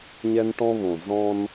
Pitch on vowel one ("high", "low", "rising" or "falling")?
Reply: high